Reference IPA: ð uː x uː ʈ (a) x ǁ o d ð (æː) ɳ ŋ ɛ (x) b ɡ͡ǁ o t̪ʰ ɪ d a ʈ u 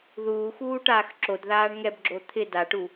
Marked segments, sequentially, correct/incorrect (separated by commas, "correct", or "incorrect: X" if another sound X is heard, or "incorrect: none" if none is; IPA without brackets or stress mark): incorrect: aː, incorrect: aː, incorrect: none